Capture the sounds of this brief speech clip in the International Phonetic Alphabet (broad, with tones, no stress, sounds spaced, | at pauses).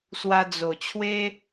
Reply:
s w a˧ d͡z o˨˩ t͡ɕʰ w e˦